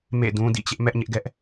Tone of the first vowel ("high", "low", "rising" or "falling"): falling